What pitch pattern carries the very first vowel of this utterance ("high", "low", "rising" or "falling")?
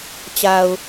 low